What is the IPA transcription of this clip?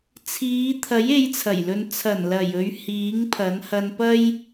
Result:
t͡sʰ iː˨˧ t̪ʰ ɐ˨˥ j e˨˧ j t͡sʰ ɐ˨˩ j l ɵ˨ n t͡sʰ ɐ˨˩ n l ɐ˨˩ j ɵ˧ ɥ h iː˨˥ ŋ pʰ ɐ˨˥ n h ɐ˧ n p ɐ˥ j

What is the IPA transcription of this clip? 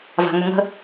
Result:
v a̤ ŋ ʏ ŋ ə̤

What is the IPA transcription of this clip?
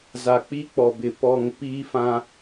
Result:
z a˨ k͡p i˦ k͡p ɔ˨ b ɪ˨ p ɔ˦˨ ŋ p iː˦ f ã˦

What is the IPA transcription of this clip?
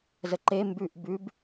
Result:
z ə ǃ e m b ʉ ʔ b ʉ b

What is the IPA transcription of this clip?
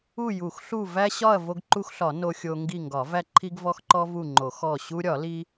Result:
u˦˨ j u˨˩˦ x ɬ u˦˨ v æ˦ ɕ ɒ˦˨ ɐ̯ v o˦ ɡ ǃ u˦ x ɬ ɒ˨˩˦ n o˦ xʲ o˦ ŋ ɡ i˦˨ ŋ ɡ ɒ˨˩˦ v æ˦ ǃʰ i˦ ɡ v ɔ˦ x ǃ ɔ˦ v u˦˨ ŋ͡ǃ o˨˩˦ x ɔ˦˨ ɕ u˦ ɾʲ ɒ˨˩˦ l i˦

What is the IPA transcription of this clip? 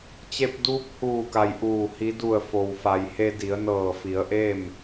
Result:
t͡ɕ e˧ p̚ d uː˧˥ p̚ h uː˧˩ k a˩ j ʔ uː˧˩ h i˧˥ d u˧˩ ə̯ f o˩ w f a˩ j h e˧ d i˩˧ ə̯ n ɤː˧˩ f i˩˧ ə̯ ʔ e˥˨ m

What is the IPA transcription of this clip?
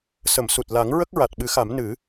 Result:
s ə˨˩˨ m s u˨˩ t̚ l a˨˩˦ ŋ ɹ ə˦˥ k̚ ɹ a˨˩ t̚ ɓ ɨ˨˩˦ x a˨˩˦ m n ɨ˨˩˦

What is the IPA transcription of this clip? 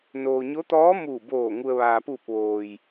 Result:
n oː˩ ɲ o˧˥ t̪ ɔː˧˥ m uː˧˩ b oː˧˩ ŋ u˩ ə̯ ʋ aː˩ p uː˧˩ p̚ ʋ oː˩ j

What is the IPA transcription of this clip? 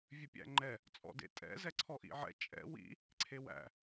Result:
vʲ ʉ pʲ æ̰ ŋ͡ǃ ɛ | t͡sʼ ɔ̰ d ḛ tʼ ɛ̰ z ɛ ǀʰ ɔ ʔ ḭ ʕ ɛ̰ t͡ʃʼ ɛ̰ w ḭ | ǀʰ e w æ̰

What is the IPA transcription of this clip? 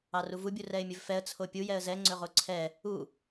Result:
ɑ r u v u bʲ u r ɛ ɪ̯ mʲ ɵ v f ɛ ə̯ t͡sʰ o pʲ u j ɛ ə̯ z ɛ ŋ͡ǀ ɵ ʁ o ǀʰ ɛ | u

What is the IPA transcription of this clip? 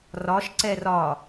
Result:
r ɒ ʃ ǀ ɛ r ɒ

